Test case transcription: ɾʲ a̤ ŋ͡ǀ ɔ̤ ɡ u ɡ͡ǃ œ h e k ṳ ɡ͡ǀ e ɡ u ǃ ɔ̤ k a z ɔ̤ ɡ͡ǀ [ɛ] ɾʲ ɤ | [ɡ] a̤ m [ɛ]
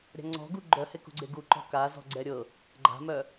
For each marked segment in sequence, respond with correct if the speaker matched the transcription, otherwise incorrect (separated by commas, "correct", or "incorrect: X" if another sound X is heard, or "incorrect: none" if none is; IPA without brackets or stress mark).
correct, incorrect: ɡ͡ǃ, incorrect: œ